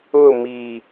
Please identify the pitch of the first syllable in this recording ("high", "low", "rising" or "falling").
falling